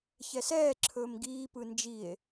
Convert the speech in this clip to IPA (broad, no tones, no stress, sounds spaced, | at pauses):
ç ɛ s ɛː ǁʰ ɵː m ɡ iː p ɯ n d͡ʒ i e̯